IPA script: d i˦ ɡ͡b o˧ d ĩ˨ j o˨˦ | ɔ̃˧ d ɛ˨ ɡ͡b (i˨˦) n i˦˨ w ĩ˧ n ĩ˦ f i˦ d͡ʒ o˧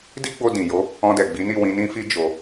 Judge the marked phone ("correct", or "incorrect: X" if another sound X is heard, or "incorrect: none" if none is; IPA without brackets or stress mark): correct